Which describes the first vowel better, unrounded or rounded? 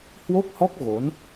rounded